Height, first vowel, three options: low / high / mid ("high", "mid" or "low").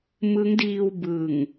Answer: high